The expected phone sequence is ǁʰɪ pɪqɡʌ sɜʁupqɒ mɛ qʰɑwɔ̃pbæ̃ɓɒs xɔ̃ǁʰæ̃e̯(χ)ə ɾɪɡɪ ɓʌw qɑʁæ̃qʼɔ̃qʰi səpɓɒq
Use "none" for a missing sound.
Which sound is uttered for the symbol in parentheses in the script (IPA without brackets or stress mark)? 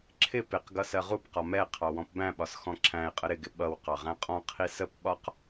qʼ